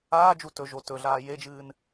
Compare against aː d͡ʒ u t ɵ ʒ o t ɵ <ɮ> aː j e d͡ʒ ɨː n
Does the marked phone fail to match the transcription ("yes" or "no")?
no